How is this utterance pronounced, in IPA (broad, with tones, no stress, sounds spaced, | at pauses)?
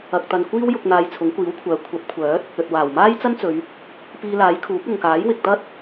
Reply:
ɐ˨ k̚ t̪ ɐ˨ n kʷ iː˥ w j ʊ˧ k̚ n̪ aː˧ j t͡sʰ ʊ˨˥ ŋ kʷ iː˨˥ w kʷʰ œː˨˧ kʷʰ ɐ˨˥ p̚ kʷʰ œː˨˥ t̚ | ɵ˨ t̚ w aː˨˩ w m aː˥ j t͡s ɐ˥ n t͡s ɵ˨˧ ɥ | p iː˧ l aː˨˥ j kʰ uː˨˥ k̚ ʊ˨ ŋ k aː˨˥ j w ɪ˨ k̚ t̪ ɐ˥ t̚